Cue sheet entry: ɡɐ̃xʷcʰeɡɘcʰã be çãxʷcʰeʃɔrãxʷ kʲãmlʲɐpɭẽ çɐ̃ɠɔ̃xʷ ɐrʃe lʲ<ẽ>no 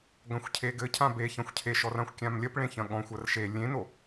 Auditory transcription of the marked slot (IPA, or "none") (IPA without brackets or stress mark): ẽ